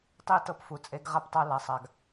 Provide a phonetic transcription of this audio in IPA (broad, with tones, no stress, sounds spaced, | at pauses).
tˤ i˥ t ɤ˥ p f u˧ t͡sʼ e˥ ɡ ʁ a˥ p tˤ a˥ l a˧ sˤ a˧ ɡ